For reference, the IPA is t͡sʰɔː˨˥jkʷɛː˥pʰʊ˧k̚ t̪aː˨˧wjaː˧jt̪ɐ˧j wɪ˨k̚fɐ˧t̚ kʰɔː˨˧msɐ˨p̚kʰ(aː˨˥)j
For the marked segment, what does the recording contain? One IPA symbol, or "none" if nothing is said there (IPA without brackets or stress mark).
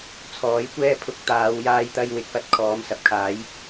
aː˨˥